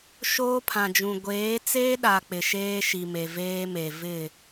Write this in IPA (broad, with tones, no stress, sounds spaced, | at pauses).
ʃ oː˦ pʰ ã˨ d͡ʒ ũ˨ ɡʷ eː˨˦ t͡s eː˦ ɗ a˨ k͡p ɪ˨ ʃ eː˦ ʃ i˨ m e˨ v eː˦ m e˨ v ɪ˦˨